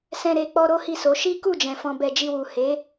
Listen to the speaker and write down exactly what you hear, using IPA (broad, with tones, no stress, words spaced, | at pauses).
sɛ̃˧ ɾe˧ k͡pɔ˦ɾo˦hi˦˨so˨˦ ʃi˦ku˦˨d͡ʒɛ̃˨ fɔ̃˧bɛ˧d͡ʒi˧wu˨ he˨˦